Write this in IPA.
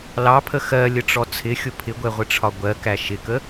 l ɑ pʰ ə x ɜ lʲ ə ʈ͡ʂ ɔ t͡sʰ ɪ xʲ ʊ pʰ ɪ ɡʷ ɛ ʁʷ ɪ ʈ͡ʂʰ ɒ ɡʷ ɜ k æ ʃ ɪ k ə

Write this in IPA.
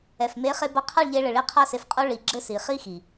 ɛ˨ f m e˨˦ χ e˧ b ɐ˧ qʰ a˦˨ ɭ ʎ e˧ ɭ ɘ˨ ɭ i˧ qʰ a˦ s e˧ f qʼ o˦ ɭ i˧ ɡ͡ǁ ɘ˦ s i˨ χ i˦ x i˨

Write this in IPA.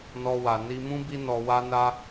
n ɔ˧ w a˨ n i˧ m ũ˦ b i˦ n ɔ˧ w a˦ n a˦

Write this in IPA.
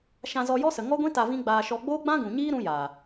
ʃ ã˧ z ɔ˧ j ɔ˦ s ə˨ ŋ ɔ˦ ɡʷ ĩ˦ t a˧ v ĩ˦ ɡ͡b aː˧ ʃ ɔ˧ ɡ͡b oː˦ ɡ͡b ã˦ ɡ ũ˨ ɲ iː˦ ɾ ũ˧ j aː˨

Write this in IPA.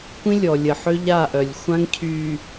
kʷ ĩ˦ lʲ ɔ˨ lʲ ə˨ ħ ø˦ ʎ a˦˨ ʔ œ˨ lʲ xʷ ã˦ ŋ cʰ y˨

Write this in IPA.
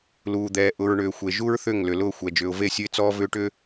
l uː˨ d̪ ɛː˨ ʔ ʊ˨ ɹ ɳ ʏː˨ xʷ e˨ ʒ u˦ ɹ θ ʏ˦˨ ŋ l ʏ˨ l ʊː˦˨ xʷ ɛ˨ d͡ʒ ʏː˨ ʊ̯ v e˦˨ sʲ ʊ˦ ɪ̯ t͡s ɔː˦ v ʏː˦ ʈ ʏ˦

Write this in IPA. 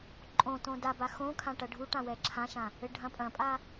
ǃʼ õ t õ d a b a x õ kʰ ã ʈ ɐ ɖʱ u ʈ ã w ɛ ǁʰ ã ʃ ã | ɘ ɖʱ ɐ̃ pʼ ɐ̃ pʼ a

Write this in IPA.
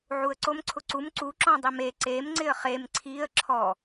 ʕ u ə̯ ǀ o m ǀʰ ʊ ǀ u m ǀ u ǁ ɔ̃ dˤ i m e ǀ e m ŋ͡ǀ ɪ ə̯ χ e m ǀʰ i ə̯ ǁʰ ɔ

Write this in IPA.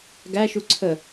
ɡ æ ʃ u ǀʰ ə

